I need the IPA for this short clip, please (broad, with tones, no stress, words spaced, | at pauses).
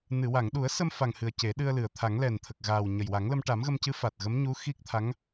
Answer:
nɨ˨˩˨wa˨˩˨ŋɗu˨˩˦ə̯sə˧m fa˨˩ŋhɨ˨˩ə̯ ce˨˩˦ɗɨ˧ə̯lɨ˨˩ə̯ t̪ʰa˨˩˦ŋlɛ˨˩n t̪ʰə˨˩k̚ ɣaː˨˩w ɲə˨˩jwa˨˩˦ŋlə˧m ʈa˨˩˦mɣə˧mcɨ˧˥ fa˨˩t̚ɣə˧˥mɲu˧˥ xi˦˥k̚t̪ʰa˧˥ŋ